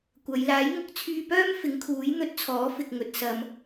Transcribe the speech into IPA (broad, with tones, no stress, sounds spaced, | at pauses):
kʷ ɐ˨˧ j l aː˨˥ j ŋ ʊ˨˥ k̚ t͡sʰ yː˧ p œː˥ m f ɪ˨˥ ŋ kʰ uː˨˥ j n̪ ɵ˧ t̚ t͡sʰ ɔː˨˥ f ɪ˨ k̚ ŋ ɵ˨ t̚ s ɐ˨ m